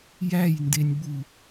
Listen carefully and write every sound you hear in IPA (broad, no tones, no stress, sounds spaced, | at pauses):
j æ j n d e nʲ ɓ u